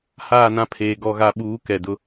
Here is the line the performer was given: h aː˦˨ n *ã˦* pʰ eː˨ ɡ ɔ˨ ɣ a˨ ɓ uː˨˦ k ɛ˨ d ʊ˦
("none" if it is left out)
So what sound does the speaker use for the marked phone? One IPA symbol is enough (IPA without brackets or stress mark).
ã˦